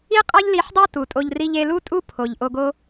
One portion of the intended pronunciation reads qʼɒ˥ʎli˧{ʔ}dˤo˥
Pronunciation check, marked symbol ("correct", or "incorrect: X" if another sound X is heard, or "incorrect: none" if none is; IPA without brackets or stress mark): incorrect: ħ